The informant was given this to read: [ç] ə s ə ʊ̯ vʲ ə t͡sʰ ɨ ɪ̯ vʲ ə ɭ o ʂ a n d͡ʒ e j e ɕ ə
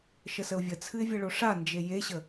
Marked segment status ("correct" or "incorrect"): incorrect